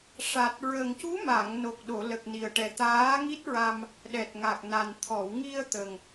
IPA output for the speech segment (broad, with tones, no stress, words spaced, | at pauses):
ʂa˨˩t̚ ɹə˨˩ŋcu˧˥ma˨˩˨ŋno˨˩k̚ ɗo˨˩˨lə˨˩k̚ni˨˩ə̯ʈɛ˨˩ t̪aː˧˥ŋi˦˥t̚ɹa˧m | ɗɛ˨˩t̚ŋa˨˩k̚na˨˩n t̪ʰɔ˨˩˨wŋi˧ə̯ t̪ə˨˩ŋ